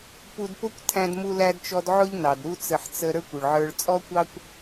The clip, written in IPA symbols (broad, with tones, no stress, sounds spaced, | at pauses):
p u˧ d p ʊ˥ kʷ tʰ æ̃˧ d m u˧ l æ˧ d t͡ʃ ɔ˧ d ʕ ʊ˥ ʎ n ɑ˩ d ɾ u˥ t͡s ə˧ ħ t͡s ə˧ ɾ ə˞˥ kʷ ʊ˩ ɭ ʕ ə˞˧ ɭ t͡sʼ ɔ˥ kʷ ɑ˥ kʷ